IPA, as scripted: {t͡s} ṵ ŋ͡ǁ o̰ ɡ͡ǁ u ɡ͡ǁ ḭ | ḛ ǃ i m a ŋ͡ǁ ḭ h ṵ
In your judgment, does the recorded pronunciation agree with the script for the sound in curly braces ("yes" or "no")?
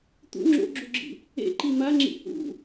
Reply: no